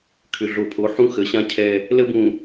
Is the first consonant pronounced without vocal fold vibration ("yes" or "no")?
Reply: yes